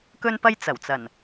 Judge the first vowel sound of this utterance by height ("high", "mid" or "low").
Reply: mid